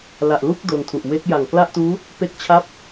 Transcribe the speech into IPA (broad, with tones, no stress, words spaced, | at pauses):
la˨˩ʔlu˥˩k̚ do˧ntʰu˨˩ʔ we˦˥k̚ ja˨˩ŋ kla˥˩ʔtuː˦˥ | pe˥˩k̚t͡ɕʰa˥˩p̚